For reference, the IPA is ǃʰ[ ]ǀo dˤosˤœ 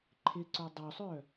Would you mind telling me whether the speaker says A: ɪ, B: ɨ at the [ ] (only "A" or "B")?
A